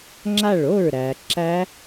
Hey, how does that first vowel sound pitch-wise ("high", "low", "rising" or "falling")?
falling